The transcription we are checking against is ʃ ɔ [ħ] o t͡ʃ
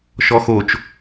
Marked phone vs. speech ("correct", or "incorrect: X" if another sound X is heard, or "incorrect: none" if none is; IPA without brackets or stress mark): incorrect: x